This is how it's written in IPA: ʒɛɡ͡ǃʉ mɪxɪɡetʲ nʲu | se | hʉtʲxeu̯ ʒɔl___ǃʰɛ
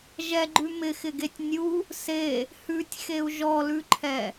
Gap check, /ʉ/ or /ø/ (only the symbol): ʉ